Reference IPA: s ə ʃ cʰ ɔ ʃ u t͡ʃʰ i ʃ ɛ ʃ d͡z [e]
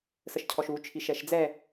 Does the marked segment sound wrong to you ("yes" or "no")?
yes